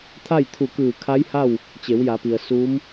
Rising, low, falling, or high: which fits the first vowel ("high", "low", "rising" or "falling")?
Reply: falling